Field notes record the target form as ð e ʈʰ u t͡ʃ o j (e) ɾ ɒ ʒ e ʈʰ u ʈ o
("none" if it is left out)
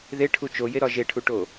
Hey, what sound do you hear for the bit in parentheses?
e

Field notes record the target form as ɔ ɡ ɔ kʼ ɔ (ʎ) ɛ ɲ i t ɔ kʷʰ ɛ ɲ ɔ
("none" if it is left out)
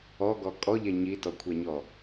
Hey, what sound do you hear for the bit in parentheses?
ʎ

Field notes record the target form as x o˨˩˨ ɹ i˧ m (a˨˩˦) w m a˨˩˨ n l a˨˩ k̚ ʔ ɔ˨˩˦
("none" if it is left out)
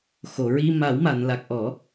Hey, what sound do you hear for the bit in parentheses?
a˨˩˦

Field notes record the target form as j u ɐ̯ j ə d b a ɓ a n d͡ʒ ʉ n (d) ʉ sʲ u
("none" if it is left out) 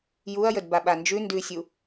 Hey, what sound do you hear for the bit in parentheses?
d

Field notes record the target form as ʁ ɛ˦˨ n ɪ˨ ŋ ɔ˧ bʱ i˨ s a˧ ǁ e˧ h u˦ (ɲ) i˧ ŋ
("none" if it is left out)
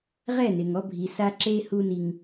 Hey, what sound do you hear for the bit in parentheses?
n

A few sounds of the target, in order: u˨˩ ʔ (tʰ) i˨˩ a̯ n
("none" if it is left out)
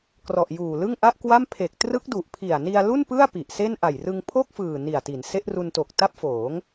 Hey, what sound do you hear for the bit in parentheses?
pʰ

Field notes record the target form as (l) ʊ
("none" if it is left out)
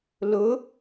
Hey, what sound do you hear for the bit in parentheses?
l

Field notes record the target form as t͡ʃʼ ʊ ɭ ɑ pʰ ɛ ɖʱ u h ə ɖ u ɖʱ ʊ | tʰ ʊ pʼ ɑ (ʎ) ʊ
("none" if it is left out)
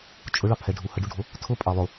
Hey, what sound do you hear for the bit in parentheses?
lˠ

